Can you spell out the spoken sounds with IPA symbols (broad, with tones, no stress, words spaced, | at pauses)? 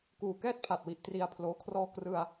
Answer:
kuː˨˩kɛː˥˩t̚ pʰa˨˩t̚wi˨˩ʔ tri˧a̯ pʰloː˧ kʰrɔː˧ krɯ˧a̯